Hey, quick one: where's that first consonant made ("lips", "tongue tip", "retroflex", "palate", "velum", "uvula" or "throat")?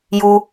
palate